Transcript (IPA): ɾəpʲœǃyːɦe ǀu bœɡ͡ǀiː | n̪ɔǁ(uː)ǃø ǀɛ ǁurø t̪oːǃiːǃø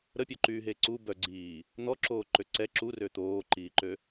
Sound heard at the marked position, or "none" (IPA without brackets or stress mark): oː